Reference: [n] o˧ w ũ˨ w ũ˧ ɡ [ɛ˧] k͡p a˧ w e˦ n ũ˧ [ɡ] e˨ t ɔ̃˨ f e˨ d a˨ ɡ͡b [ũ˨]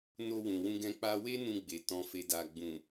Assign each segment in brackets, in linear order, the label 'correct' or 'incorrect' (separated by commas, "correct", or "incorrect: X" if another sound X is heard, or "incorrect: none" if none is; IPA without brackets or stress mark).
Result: correct, incorrect: ɛ̃˧, incorrect: ɡ͡b, correct